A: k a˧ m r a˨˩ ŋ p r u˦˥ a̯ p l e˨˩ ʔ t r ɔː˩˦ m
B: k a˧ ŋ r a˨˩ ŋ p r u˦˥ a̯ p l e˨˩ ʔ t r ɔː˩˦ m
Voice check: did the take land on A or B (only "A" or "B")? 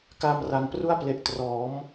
A